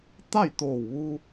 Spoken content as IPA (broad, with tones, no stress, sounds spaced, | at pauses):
t̪ a˥˨ j t̪ oː˧˩ w ʋ u˧